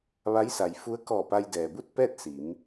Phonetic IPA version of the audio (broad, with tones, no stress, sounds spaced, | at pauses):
ʋ a˧˥ j s a˩ j f u˧˥ ə̯ k ɔː˧˩ p a˧ j d ɛː˩ b u˥˨ t̚ p ɛː˥˨ t̚ s i˩˧ m